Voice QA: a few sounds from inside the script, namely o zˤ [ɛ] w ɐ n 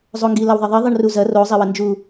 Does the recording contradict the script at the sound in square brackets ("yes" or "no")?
no